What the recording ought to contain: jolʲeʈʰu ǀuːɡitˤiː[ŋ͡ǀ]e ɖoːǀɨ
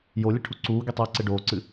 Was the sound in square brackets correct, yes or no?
no